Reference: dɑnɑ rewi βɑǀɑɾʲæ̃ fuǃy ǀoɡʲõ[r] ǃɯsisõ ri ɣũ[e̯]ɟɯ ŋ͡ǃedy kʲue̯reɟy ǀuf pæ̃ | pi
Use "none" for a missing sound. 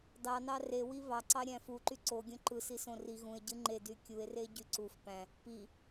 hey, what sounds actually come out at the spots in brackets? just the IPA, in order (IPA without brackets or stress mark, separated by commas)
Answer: none, e̯